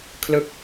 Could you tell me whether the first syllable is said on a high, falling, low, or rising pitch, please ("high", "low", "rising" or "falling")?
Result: falling